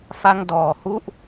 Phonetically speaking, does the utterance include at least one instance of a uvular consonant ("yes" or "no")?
no